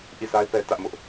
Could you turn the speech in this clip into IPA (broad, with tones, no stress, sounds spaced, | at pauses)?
ʔ i˦˨ sʰ a˦ ɪ̯ p ɛ˦ t ä˦ ʔ m ʊ˦ ʔ